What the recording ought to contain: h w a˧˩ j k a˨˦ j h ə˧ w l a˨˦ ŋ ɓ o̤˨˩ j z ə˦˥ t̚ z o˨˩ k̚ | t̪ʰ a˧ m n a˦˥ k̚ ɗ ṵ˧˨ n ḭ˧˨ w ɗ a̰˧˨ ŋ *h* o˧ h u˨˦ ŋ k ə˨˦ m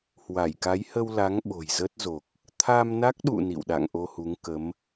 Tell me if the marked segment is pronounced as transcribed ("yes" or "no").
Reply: no